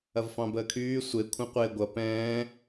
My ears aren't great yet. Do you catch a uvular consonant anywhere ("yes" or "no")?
yes